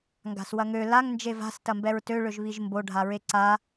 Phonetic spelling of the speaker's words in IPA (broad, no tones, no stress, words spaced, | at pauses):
ŋɡa̤swɐŋø laŋ nd͡ʒeva̤s tɐmbɛɹtø ɭøʒβiʒmbo ɖʱaɹeǀa